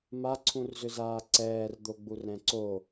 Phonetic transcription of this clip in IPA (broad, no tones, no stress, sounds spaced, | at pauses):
m a ǀʰ ũ r z ʏ z aː ǀ ɛː r d̪ o ɡ͡b u r ɾ ɛ̃ ǀ o